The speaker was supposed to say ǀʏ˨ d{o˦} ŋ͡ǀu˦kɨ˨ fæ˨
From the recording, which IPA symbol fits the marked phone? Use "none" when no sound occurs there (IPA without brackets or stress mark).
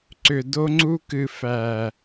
o˦